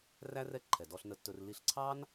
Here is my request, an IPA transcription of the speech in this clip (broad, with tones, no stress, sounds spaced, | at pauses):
r æ˥ r ɛ˧ ǃʰ ɛ˩ d ɔ˧ ɬ n ə˧ tː ɵ˧ r l i˧ ɬ ǀʰ ɑ˥ n